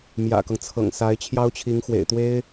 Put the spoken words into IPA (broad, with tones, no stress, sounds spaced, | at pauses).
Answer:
m j ä̰˨˩ k ɤ˦ ŋ t͡sʰ ɤ̰˨˩ ŋ s a˧˥ ɪ̯ t͡ɕʰ j ɑ˥ ʊ̯ t͡ɕʰ i˧˥ ŋ x w ḛ˨˩ ɪ̯ t̪ w e˥ ɪ̯